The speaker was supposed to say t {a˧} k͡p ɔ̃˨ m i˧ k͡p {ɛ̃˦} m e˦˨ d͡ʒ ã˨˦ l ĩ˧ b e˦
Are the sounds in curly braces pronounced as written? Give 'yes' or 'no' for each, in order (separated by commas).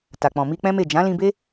no, yes